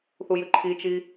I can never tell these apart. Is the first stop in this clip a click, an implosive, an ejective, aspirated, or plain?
click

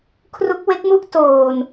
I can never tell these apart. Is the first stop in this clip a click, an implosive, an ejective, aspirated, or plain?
aspirated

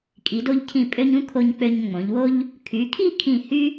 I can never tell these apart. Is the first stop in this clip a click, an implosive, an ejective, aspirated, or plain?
ejective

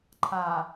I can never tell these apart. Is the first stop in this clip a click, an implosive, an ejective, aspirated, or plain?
click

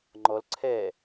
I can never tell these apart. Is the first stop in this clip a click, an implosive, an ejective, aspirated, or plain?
click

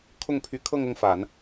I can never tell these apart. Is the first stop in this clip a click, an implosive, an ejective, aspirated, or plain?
aspirated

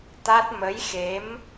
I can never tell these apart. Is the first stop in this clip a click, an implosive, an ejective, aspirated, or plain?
plain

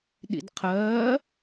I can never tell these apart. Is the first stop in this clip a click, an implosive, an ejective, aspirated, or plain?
implosive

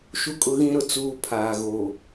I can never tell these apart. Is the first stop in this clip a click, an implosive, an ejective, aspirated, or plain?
ejective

